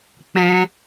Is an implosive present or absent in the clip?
absent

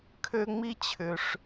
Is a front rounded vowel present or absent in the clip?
present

